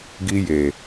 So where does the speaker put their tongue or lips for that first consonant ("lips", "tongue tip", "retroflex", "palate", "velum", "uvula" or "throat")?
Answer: velum